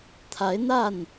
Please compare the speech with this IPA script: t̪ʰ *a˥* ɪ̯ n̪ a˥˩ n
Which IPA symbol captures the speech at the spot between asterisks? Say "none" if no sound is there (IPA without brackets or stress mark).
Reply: a˧˥